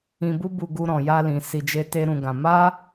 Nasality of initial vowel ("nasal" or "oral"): nasal